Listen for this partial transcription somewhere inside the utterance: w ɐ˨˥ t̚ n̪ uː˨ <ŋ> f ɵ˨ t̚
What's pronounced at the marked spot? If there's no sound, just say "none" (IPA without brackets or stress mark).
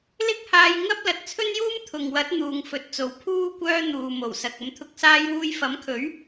ŋ